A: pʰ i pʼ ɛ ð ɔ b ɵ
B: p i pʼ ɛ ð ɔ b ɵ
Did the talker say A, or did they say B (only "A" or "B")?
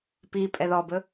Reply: B